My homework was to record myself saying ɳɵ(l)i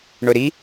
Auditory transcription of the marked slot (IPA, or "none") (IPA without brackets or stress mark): ɾ